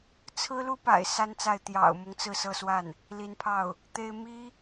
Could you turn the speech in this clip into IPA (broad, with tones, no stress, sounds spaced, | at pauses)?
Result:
t͡sʰ ɹ̩˥ l u˥ p a̰˨˩ ɪ̯ s a˥ n t͡s a˥˩ ɪ̯ t̪ j ɑ̰˨˩ ʊ̯ m ʊ˦ ŋ t͡s ɹ̩˥˧ s ɤ˥˧ s w a˥˩ n | l i˧˥ n pʰ ɑ˥˩ ʊ̯ | t̪ e˥ ɪ̯ m i˥